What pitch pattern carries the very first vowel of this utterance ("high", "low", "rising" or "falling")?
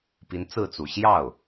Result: rising